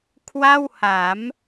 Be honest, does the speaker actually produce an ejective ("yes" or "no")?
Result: no